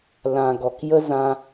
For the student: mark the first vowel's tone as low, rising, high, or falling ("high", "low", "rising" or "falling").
low